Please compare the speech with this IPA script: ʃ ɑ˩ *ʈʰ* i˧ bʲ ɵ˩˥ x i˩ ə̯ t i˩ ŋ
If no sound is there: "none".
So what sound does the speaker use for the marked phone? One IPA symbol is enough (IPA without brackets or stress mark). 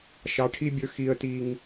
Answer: ʈʰ